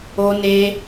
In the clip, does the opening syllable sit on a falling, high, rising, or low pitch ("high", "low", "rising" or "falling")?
high